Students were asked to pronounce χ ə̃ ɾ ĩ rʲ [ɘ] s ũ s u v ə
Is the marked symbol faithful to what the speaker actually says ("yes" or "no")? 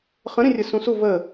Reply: yes